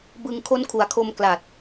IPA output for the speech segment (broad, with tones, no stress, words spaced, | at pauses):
bɯ˧ŋkʰo˦˥n kʰu˩˦a̯kʰo˧m kla˨˩t̚